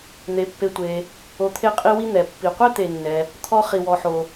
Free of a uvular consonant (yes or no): no